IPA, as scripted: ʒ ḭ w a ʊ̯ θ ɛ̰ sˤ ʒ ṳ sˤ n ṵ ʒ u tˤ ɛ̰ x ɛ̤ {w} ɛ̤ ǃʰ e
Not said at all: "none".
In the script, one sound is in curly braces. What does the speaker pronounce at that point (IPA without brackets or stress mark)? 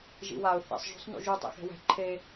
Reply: w